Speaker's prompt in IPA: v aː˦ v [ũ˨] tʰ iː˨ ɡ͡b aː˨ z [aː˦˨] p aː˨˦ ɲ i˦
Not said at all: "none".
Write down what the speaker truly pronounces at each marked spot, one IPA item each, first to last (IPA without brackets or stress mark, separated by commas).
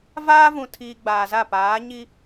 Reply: ũ˨, a˦˨